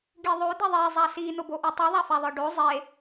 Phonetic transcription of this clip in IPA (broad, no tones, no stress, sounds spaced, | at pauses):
ɡ i ðˤ o d i ðˤ e zˤ a s i n o b o ʔ i tˤ i ðˤ a f a ðˤ ə˞ ɖ o zˤ e